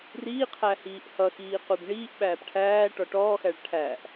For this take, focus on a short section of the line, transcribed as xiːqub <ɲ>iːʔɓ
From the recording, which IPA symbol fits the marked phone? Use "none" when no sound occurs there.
ɳ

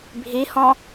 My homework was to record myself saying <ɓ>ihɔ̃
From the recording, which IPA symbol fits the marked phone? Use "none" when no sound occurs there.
bʱ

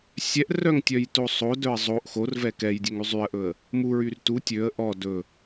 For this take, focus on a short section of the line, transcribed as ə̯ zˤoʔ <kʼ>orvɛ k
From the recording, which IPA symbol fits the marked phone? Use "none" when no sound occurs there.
x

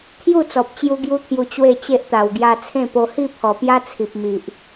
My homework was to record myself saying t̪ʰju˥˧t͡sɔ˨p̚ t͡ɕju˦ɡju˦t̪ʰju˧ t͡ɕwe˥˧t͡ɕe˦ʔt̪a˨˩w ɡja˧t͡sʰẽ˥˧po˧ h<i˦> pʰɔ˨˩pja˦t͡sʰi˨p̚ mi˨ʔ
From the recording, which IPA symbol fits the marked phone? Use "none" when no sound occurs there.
i˥˧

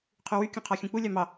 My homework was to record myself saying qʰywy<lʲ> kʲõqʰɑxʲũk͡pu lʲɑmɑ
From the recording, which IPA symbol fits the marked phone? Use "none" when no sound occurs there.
none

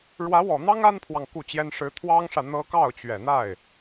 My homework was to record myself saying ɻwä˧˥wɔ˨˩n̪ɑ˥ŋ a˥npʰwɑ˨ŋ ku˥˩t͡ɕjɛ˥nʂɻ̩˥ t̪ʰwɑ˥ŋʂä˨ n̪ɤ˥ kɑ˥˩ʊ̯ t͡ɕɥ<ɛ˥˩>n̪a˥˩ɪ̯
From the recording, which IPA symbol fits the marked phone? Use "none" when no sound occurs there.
ɛ˨˩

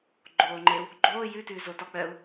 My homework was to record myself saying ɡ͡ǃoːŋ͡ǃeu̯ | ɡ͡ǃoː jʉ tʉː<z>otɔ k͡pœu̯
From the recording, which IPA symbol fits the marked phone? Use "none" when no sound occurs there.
z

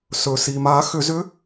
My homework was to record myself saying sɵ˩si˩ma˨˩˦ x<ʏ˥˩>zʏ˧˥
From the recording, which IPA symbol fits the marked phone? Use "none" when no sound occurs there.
ʏ˨˩˦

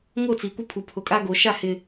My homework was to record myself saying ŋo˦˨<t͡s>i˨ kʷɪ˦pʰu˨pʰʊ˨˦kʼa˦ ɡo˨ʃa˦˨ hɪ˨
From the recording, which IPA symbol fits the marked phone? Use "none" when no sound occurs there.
t͡s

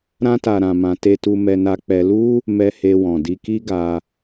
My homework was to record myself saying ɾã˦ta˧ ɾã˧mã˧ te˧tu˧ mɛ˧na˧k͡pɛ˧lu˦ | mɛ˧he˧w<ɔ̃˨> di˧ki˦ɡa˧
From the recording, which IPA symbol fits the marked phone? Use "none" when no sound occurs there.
ɔ̃˨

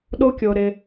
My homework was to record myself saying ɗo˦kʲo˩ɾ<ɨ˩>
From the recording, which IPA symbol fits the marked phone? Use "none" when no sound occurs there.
ɪ˩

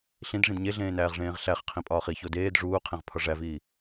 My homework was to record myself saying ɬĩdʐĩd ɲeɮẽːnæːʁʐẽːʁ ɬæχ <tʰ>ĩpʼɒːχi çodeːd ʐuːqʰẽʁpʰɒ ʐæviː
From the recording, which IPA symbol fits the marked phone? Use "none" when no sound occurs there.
qʰ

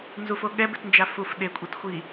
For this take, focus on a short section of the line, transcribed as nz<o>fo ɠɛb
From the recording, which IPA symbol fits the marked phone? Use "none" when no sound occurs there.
u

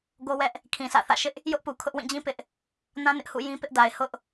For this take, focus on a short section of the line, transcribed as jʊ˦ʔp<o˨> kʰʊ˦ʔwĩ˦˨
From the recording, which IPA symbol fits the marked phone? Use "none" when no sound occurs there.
u˨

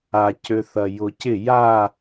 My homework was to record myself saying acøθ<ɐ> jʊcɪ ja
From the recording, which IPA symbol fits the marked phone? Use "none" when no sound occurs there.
ɐ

